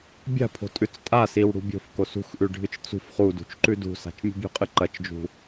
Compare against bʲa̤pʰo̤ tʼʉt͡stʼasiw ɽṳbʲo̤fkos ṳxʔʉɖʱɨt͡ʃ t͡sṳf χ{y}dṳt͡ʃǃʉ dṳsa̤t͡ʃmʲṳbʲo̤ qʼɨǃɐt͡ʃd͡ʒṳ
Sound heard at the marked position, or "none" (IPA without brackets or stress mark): u